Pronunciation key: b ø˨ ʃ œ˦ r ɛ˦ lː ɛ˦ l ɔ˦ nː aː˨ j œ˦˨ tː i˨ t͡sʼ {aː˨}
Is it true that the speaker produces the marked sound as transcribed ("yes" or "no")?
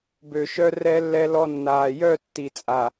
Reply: no